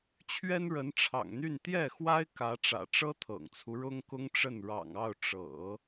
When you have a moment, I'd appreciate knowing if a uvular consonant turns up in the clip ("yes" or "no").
no